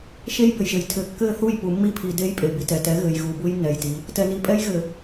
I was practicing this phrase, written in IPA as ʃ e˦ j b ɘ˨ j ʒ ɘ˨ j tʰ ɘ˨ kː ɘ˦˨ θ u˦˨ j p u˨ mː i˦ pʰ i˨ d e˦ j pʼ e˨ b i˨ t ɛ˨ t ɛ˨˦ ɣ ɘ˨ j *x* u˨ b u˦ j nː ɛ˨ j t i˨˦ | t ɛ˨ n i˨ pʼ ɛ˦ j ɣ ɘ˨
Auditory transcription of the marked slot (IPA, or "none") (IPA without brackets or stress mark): ɣ